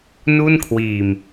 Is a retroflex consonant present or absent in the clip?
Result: absent